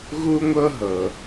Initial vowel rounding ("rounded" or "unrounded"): rounded